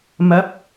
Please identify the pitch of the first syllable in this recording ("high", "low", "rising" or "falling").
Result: rising